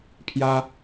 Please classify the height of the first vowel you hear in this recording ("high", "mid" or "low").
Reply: low